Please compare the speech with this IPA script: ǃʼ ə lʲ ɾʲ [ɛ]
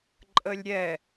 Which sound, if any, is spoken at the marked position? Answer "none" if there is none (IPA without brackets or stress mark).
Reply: ɛ